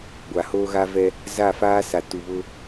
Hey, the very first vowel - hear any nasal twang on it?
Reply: no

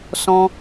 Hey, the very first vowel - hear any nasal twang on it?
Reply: yes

